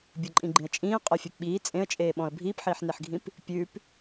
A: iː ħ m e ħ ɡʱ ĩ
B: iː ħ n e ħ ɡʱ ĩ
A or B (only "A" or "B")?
B